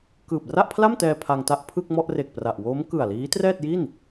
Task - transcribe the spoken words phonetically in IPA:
k ɯː˨˩ p̚ r a˥˩ ʔ pʰ l a˥˩ m t ɛː˧ pʰ a˧ ŋ t a˥˩ ʔ pʰ ɯ˥˩ k̚ m ɔ˥˩ ʔ r e˨˩ k̚ p r a˨˩ ʔ w oː˦˥ m k ɯ˨˩ a̯ l iː˦˥ t r ɛː˥˩ t̚ j i˥˩ n

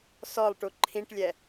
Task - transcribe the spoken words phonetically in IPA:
s ɔ lˠ ʈ u ǃʰ ĩ ʈ lʲ ɛ

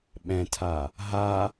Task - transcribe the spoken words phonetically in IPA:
ɓ ɛ̃ tʰ a | ɦ a

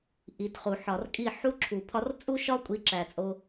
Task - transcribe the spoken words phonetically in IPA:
ʔ i˨ t χ u˨ ħ ɒ˨ r kʼ i˦˨ ħ u˦ ǁʰ u˨ pʰ ɒ˧ r t͡sʼ u˦ ʃ ɒ˦ kʷʼ i˧ ǁ æ˨ t͡sʼ o˧

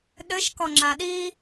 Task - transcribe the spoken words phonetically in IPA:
ɗ ɘ ʃ k ɔ ŋ͡ǁ a ɗ i

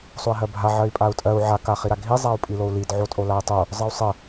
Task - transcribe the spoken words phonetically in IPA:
sˤ o i̯ ɦ ɜ bʱ a ʕ ɜ i̯ pʼ a u̯ tʼ ɜ u̯ ʕ a k a χ i ɾ a ɡʱ i zˤ a u̯ pʼ i l o u̯ l i d ʕ o tʼ o l a i̯ tˤ o | zˤ ɜ u̯ sˤ ɜ

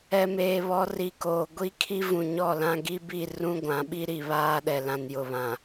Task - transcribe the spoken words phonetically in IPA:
ɛ˨ m eː˨ β ɔ˨˦ r i˨ k oː˨ ɡʷ i˦ kʰ i˦ v ũ˨ ɲ ɔ˦˨ l ã˦ ɡ i˦ b i˦˨ r ũ˦ ɡʷ ã˨˦ ɓ i˦ ɾ i˨ β aː˦ ɗ ɛ˨ l ã˨ n j ʊ˨ β ã˨

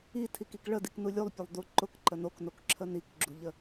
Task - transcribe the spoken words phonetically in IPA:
i tʰ i k i k ɭ ə d i k n u lʲ u lˠ pʲ ʊ lˠ d u ǃ ʊ k ǃ ə n o k n o k ǁʰ ə n i k ɡ͡ǁ u ʎ ə

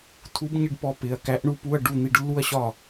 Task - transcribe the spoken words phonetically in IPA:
tʰ u˧˥ b ɲ ɪ˥˧ ɖ p ɔ˧˥ p ɪ˩˧˩ ɐ̯ k æ˧˥ ʔ ɳ u˧˥ p u˧˥˧ ɐ̯ ɖ u˥˩ n̪ i˥˩ ɖ lː u˥˧ ɐ̯ ɕ ɒ˥˩

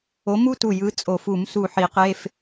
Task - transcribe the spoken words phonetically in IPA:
o˨˥ m u˥ t u˧˩ j ɯ˨˥ t͡sʼ o˨˩˦ f u˨˩˦ m s u˧˩ ħ i˨˩˦ q e˧˥˧ f

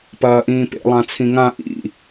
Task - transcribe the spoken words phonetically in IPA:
p ɐː ʔ ĩː p ḛ lˠ ã t͡sʰ ĩ ŋ ã ʔ ḭ

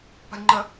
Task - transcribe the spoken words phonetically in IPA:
p a̤ lʲ ŋ͡ǃ ə

